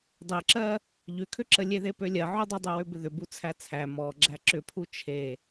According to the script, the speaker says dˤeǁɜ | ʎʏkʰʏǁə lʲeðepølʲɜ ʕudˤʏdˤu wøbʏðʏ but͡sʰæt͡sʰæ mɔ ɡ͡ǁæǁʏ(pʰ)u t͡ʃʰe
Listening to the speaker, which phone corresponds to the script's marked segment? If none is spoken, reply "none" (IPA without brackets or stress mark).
pʰ